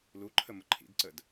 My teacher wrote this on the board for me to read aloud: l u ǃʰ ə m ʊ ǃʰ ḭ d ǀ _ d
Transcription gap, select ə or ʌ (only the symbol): ə